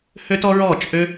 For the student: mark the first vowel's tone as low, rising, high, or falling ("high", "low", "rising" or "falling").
high